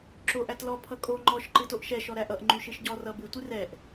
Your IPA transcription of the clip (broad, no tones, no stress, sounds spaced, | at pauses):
ǁ o ʔ æ t l ɔ pʰ ʌ kʼ o ŋ͡ǃ ɔ ʃ ǃ ɨ t o ʔ ʃ ɛ ʃ ɔ ɾ æ ʔ ʌ ʔ ŋ͡ǃ y ʃ ɨ ʃ ɟ ɔ r ʌ b ɨ tʷ ɨ r ɛ ʔ